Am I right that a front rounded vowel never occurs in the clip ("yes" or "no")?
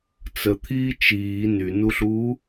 no